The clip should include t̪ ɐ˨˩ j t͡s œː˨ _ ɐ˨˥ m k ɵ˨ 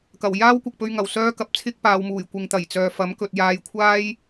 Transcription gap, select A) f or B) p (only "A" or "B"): A